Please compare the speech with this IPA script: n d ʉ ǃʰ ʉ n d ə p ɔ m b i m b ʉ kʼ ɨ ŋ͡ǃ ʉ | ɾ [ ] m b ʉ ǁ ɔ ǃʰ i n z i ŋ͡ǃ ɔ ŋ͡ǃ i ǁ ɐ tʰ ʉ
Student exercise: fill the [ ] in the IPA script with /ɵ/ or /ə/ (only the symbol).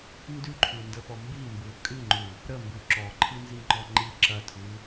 ə